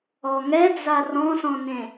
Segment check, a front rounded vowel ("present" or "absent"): absent